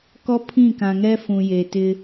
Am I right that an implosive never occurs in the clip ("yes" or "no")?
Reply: yes